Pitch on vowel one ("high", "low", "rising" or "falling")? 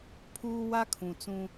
high